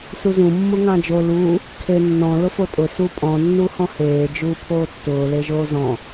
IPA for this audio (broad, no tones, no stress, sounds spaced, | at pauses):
s u z ũ mː u ŋ ɑ̃ d͡ʒ o l uː | kʰ e nː ɔ̃ l ʊ f o tʼ ʊ s u pʼ ɔ̃ nː u h ɔ̃ h eː d͡ʒ uː pʰ oː tː ʊː l e ʒ oː z ɔ̃